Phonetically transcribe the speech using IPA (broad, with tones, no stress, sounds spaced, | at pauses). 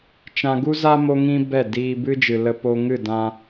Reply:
t͡ʃ ã˧ ɡ u˦ z a˦ m o˦ ŋ ĩ˦ b ɛ˦˨ d iː˧ b ɨ˦ d͡ʒ ɨ˨ l ə˧ p o˧ ŋ ɨ˦˨ d ã˧